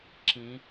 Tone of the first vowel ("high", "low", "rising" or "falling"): rising